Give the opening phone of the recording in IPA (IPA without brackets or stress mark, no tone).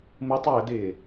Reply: m